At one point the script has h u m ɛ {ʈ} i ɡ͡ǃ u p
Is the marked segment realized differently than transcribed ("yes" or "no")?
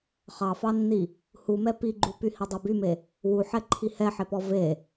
yes